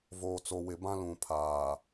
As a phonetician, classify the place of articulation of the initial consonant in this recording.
labial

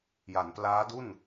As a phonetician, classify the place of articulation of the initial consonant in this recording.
palatal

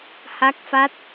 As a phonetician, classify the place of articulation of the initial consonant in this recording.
glottal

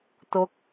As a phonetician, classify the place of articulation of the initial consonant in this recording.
alveolar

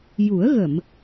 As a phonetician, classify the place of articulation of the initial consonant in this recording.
palatal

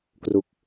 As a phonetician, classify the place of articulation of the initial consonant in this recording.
velar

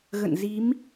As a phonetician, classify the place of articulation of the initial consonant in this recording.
velar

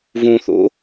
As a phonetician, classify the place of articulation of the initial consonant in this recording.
labial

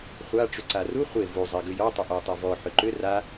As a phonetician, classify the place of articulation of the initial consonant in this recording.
uvular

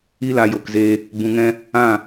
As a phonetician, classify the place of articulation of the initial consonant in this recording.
alveolar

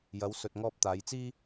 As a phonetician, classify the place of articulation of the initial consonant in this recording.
palatal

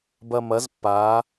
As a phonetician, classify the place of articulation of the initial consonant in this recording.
labial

